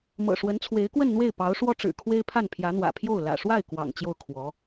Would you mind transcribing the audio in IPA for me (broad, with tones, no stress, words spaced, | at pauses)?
mɤ̰˨˩ʂwə˧˥nt͡sʰwe˧˥ɪ̯kwə˥˧n n̪we˥˩ɪ̯pɑ˧˥ʊ̯ʂwɔ˥ʈ͡ʂɻ̩˨˩ kʰwe˥ɪ̯pʰa˥˩n pʰjä˧˥n̪wä̰˨˩pʰjo˥˩ʊ̯ lä̰˨˩ʂwa˥˩ɪ̯ kwɑ̰˨˩ŋ t͡ɕjo˥˩ʊ̯kʰwɔ˧˥